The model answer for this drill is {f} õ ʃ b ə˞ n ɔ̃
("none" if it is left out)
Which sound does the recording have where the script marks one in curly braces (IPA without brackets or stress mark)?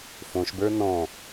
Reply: f